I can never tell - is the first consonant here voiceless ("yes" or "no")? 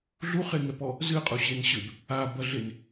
no